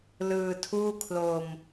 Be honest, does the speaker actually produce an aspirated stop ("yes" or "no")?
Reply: yes